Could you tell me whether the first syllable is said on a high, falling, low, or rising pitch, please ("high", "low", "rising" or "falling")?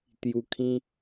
low